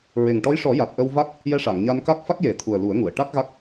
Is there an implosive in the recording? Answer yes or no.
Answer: no